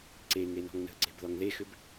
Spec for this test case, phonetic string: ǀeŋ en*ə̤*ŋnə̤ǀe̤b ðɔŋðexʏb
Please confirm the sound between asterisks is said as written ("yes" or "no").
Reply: no